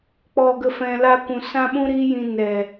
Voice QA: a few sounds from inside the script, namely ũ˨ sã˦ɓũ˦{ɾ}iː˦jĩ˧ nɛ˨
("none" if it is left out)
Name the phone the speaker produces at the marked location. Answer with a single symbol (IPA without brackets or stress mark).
ɾ